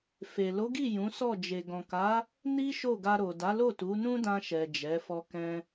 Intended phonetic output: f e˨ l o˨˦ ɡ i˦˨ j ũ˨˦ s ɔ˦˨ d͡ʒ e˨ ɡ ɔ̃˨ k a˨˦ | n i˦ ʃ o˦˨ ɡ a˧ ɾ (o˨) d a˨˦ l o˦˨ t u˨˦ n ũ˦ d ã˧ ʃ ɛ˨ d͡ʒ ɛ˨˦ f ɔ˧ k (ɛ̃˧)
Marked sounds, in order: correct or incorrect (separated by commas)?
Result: correct, correct